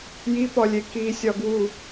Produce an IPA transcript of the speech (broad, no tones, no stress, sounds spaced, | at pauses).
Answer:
j i p ɒ lʲ e k i sʲ ɒ ɡ w u